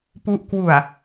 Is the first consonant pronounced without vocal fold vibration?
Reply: yes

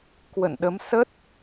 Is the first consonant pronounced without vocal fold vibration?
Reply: yes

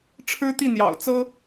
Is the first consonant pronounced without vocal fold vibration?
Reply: yes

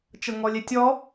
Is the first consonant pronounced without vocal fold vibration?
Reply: yes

